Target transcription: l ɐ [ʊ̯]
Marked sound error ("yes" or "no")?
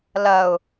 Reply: no